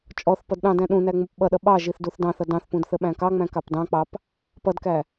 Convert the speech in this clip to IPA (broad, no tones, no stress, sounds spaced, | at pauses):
t͡ʃʼ ɔ θ p ʌ d ɗ ɑ̃ d æ̃ ɗ ũ n æ ŋ͡m u p ɓ ʌ ɗ ʌ ɓ ɑ ʒ i θ d u θ d ɑ̃ θ ʌ d ɑ̃ θ p ũ d θ ə ɓ æ̃ k ɑ ŋ͡m æ̃ k ɑ p d ɑ̃ k͡p ɑ p | p ʌ d k æ